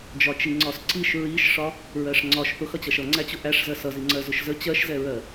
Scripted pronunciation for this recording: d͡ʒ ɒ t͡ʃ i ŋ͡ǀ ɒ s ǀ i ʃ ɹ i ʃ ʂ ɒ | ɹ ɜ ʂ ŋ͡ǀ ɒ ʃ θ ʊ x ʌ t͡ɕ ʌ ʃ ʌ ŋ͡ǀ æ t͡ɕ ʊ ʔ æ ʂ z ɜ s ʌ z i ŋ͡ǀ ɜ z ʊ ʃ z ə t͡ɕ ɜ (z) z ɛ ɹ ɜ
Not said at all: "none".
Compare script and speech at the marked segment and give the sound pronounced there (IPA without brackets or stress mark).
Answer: ʃ